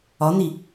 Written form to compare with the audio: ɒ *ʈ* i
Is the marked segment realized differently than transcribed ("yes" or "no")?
yes